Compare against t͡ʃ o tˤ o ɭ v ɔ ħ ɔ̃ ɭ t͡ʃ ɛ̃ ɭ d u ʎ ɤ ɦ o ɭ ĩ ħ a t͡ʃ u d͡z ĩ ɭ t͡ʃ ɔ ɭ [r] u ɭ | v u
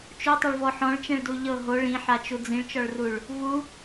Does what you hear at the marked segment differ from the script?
no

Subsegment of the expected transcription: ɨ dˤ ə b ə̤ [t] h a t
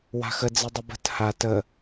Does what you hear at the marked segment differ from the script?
no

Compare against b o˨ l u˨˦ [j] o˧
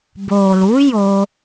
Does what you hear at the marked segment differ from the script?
no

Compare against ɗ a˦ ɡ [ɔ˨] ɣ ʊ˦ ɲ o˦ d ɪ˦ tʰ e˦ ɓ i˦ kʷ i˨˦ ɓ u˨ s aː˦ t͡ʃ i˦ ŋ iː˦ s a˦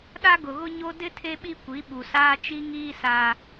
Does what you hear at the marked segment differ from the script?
yes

